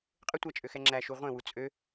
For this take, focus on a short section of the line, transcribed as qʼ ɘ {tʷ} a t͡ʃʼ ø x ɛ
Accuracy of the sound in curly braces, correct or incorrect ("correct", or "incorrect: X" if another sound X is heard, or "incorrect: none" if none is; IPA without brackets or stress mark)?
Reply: correct